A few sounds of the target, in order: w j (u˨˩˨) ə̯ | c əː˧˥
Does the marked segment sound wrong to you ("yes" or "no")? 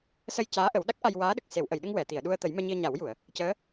no